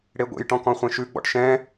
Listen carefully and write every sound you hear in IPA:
ɽ e ɡʷ ḛ j ʈ ɔ̃ k ɔ̃ χʷ ẽ ʃ ʉ ɡ͡b ɔ̰ ʈ ʃ ɛ̃

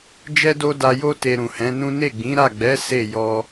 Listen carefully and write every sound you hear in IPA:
d͡ʒ ɛ˦ d o˦ d a˧ j o˦ t e˧ ɾ ũ˨ h ɛ̃˨˦ n ũ˦ n e˦˨ ɡ͡b ĩ˨˦ ɾ a˦˨ ɡ͡b ɛ˨˦ s e˦˨ j ɔ˧

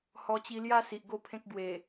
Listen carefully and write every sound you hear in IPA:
h ɔ˧ t͡ɕ i˧ l j a˦ s i˨ ʔ ɡ o˥˧ pʰ ẽ˦ k̚ ɡ w e˨˩

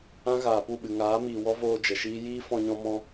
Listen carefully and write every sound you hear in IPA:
ã˦ ɣ aː˨ p u˦˨ ɓ ɨ˨ ŋ aː˨˦ m iː˨ w ɔ˦ v oː˧ d͡ʒ ə˨ ʃ iː˦ j iː˦ f ɔ̃˧ ɲ ɔ̃˧ m ɔ̃˧

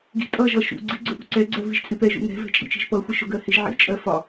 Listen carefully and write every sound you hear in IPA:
ɡ i̤ tʼ ʌ ʒ ʌ ʃ ṵ ɡ͡ǀ i ɡ͡ǀ ʊ ʔ ṳ ǀ ɛ ɡ͡ǀ ɜ v i ʒ t͡sʼ ɪ p ɛ ʒ ṵ ŋ ɛ̤ v ɛ̤ t͡ʃʼ ḭ t͡ʃ i̤ ʒ p ʌ xʷ i ʃ ʊ ɡ ɜ h ɪ ʒ ʕ ḭ t͡ʃʼ ɜ f ɒ

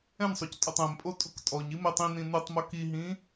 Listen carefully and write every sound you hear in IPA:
ɛ̃ n sˤ o c tʼ o tˤ ɛ̃ m pʼ o tʼ u k tʼ ɔ ɲ i m ɛ tˤ ĩ n ĩ n u tˤ m o k i ɦ ĩ

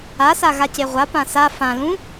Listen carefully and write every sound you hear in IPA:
a s a ɣ a c e ʁʷ a p ã s a f ã l ũ

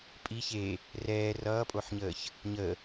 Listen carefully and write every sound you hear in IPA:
pʼ i ç e | r ɛː r ʌː pʼ o ħ ɲ əː ç | ɲ ə

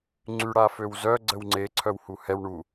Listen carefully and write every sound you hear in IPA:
ŋ͡ǀ y ɽ a f ø w z œ ɡ͡ǀ ə w ŋ͡ǀ e ǀʰ œ w h u h ɛ w ɳ u

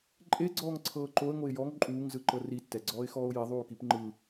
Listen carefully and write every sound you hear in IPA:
ǃʼ e ɡ͡ǀ ɔː ŋ ǀʰ ɤː ǃ o ə̯ ŋ o ɪ̯ j ɔ ŋ ǃʼ uː ŋ z ɯ ǃ ɤ r i tː ɛ ɡ͡ǀ ɔː ɪ̯ x ɔː ʊ̯ j i ðˤ uː k i p ŋ͡ǃ ɯ

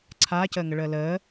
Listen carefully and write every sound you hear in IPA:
ǀʰ aː c əː ŋ ə ɭ əː l əː

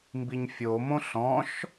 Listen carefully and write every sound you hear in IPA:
m b i ɲ fʲ o m õ ɬ ɔ̃ ʃ

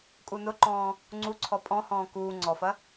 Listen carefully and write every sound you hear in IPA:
kʼ u n ʊ ǃ ɔ̃ː | ŋ͡ǀ u ǀʰ ɔ pʼ ɔ̃ h ɔ̃ː k uː ŋ͡ǀ ɔ f ɐ

